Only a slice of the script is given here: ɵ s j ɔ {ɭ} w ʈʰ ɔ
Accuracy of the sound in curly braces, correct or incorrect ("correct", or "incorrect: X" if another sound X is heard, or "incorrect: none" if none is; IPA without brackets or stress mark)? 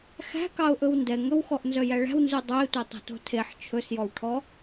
incorrect: none